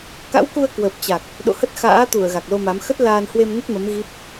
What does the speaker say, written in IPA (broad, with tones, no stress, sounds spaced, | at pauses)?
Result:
k a̰˧˥ w k u˧ ə̯ k w ə˨˩ p̚ t͡ɕ a˨˩ k̚ | ɗ o̰˧˨ h ə˦˥ t̚ x a̰ː˧˥ t̪ u˧˩ ə̯ ɣ a˨˩ k̚ l o˧ m a˨˦ m x ə˦˥ t̚ l aː˧ n h w e˧ m n ə˦˥ t̚ m ə˨˦ m ɣ i˦˥ p̚